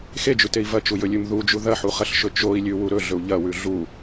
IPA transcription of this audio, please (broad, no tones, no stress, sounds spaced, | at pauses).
x e d͡ʒ ʉ t e i̯ v ɐ t͡ʃ u j ɵ lʲ ʉ m ð u d͡ʒ u ð ɐ ħ u χ ɐ ɬ ʃ ɵ t͡ʃ o i̯ lʲ ʉ w u ɾ ɵ ɮ ɵ u̯ ʎ ɐ w ʉ ɮ u